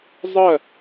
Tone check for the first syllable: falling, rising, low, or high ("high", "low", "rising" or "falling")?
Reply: falling